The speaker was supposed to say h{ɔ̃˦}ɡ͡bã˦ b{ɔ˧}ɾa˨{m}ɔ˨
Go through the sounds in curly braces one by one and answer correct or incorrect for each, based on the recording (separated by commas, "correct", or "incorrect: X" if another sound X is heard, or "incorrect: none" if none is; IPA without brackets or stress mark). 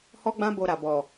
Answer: incorrect: ɔ˦, incorrect: o˧, incorrect: b